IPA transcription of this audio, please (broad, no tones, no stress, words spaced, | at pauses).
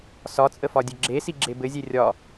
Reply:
sɒt͡sʼə fɒdʲɘɡ͡ǁesi ɡ͡ǁebɘzʲe rʲɒ